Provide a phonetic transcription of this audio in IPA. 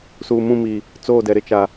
s uː˨ m ũ˦˨ m i˨ | t͡s oː˦˨ d ɛ˨ ɾ ɪ˦ t͡ʃ a˨

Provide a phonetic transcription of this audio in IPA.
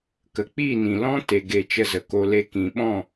k ə˨ k͡p iː˦˨ n ĩ˨ l ɔ̃˦ t e˨ ɡ e˨ t͡ʃ ə˧ z ə˨ k o˧ l e˧ k ĩ˨ ɓ ɔ̃˦˨

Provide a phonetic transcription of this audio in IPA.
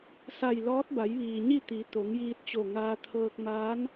s a˧˩ j l ɔː˧˥ t̚ b a˩˧ j ʋ iː˩ ɲ i˥˨ t̪ i˩˧ t̪ o˩˧ ŋ j iː˧ t̚ t͡ɕ o˧˩ ŋ aː˧ t̪ʰ ɤː˧ k̚ m aː˧˥ n

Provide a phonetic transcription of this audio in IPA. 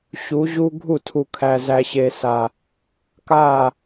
ɕ u˨˦ ʑ u˦ ɡʱ u˦˨ tʰ u˨ kʰ æ˨ z æ˨ ɕ e˨ s a˨ | k a˦˨

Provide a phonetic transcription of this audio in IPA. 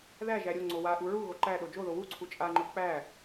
ð æ ʒ æ ɾʲ o ŋ͡ǀ o w a ʔ u ɹ u ɣ o ǃ æ ɗ o d͡ʒ o ð o w u ǀʰ u t͡ʃʼ a ŋ͡ǃ o k͡p æ

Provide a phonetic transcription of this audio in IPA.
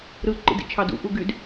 ɾ ɯ ǃ ḭ d ḭ t͡ʃʰ ɑ d ṵ ʔ u ɡ y d

